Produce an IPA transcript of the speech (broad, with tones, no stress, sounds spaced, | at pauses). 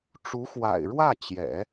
ʈ͡ʂ u˧˥ x w a̰˨˩ ɪ̯ ɻ w ä˥˩ t͡ɕ j ɛ̰˨˩˦